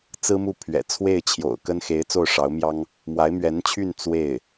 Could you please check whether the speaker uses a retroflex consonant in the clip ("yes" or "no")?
yes